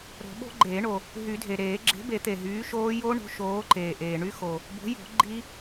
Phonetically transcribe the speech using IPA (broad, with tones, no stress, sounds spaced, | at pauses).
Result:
ɾ o̤˨˩˦ ɓ o̤˦˥ ɡ͡ǃ eː˨˩˦ ɳ o˩ | ɦ y˨˩˦ dʱ e˩ ɾ eː˨˩˦ ɡ͡ǁ e̤˨˥ b e˨˩˦ t̪ e˩ ɦ yː˨˥ ʃ oː˦˥ j o˦˥ ɳ o̤˨˥ ʃ oː˨˥ ǃ eː˩ ʔ eː˩ ɳ y˦˥ x o˩ | b o̤˨˥ j o̤˨˩˦ ɡ͡ǃ i˦˥